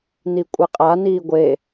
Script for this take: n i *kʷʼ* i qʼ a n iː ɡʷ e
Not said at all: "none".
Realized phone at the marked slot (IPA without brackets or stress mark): kʷʼ